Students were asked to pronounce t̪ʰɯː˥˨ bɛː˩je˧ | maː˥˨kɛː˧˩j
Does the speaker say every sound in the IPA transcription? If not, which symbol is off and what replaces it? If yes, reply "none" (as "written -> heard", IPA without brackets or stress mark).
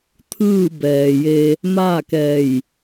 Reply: none